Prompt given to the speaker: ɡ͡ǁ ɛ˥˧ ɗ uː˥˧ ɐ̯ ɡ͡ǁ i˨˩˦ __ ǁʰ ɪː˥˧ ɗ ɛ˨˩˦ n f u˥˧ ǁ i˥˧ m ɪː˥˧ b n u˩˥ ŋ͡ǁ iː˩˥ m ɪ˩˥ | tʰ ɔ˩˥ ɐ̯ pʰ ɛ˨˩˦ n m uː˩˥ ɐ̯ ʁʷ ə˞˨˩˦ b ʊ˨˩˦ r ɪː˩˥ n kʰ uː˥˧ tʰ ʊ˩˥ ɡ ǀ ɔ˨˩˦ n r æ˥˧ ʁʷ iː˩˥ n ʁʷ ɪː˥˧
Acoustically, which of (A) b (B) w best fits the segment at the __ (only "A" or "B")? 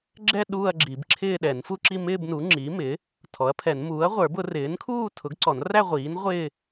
A